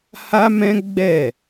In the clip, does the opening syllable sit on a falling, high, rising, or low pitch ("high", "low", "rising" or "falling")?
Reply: high